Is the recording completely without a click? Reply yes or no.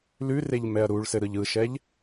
yes